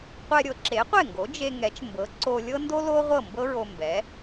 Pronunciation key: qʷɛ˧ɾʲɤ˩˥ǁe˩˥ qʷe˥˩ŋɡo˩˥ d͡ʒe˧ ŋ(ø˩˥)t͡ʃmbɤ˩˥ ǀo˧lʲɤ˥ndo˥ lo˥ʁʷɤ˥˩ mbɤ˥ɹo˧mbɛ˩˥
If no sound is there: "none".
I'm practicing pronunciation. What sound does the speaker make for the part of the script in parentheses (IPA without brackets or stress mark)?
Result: ɛ˩˥